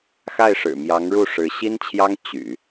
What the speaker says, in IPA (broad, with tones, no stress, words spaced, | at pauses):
xa˥˩ɪ̯ʂɻ̩˨˩mjɑ˧˥ŋɻu˥˩ ʂɻ̩˧˥ ɕi˥nt͡ɕʰjɑ˥ŋ t͡ɕy̰˨˩˦